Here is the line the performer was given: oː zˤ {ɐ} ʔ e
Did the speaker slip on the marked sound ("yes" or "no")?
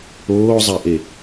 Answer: yes